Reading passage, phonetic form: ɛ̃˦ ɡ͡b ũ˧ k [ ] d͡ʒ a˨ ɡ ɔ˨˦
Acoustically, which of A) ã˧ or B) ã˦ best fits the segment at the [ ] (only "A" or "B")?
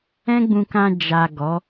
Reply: A